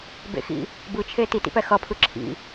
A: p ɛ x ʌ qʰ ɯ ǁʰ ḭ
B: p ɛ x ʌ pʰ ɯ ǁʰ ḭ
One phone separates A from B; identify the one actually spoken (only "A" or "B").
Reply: B